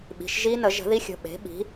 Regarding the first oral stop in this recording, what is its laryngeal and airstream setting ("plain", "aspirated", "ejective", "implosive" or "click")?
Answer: implosive